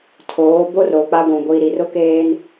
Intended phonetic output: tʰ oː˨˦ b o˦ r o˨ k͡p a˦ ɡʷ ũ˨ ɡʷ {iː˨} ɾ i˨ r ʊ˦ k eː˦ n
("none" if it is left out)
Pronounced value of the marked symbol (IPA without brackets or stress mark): iː˨